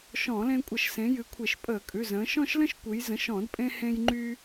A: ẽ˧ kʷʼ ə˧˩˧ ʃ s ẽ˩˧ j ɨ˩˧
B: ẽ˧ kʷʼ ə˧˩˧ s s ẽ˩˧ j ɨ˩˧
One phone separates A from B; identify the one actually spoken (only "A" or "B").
A